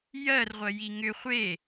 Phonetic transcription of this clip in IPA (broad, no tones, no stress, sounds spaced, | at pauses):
j ɜ r ʁʷ ɜ j i ŋ ʏ χʷ e